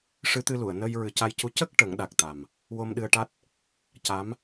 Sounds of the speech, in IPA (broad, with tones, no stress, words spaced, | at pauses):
ʂɨ˧t̪ɨ˧lu˨˩˨ə̯ nə˧j ɹɨ˨˩ca˧jcu˧ cə˦˥k̚ ʈə˨˩˦ŋɗa˨˩k̚t̪a˨˩m | wo˧mɗɨ˧ə̯ʈa˦˥t̚ | ca˧˥m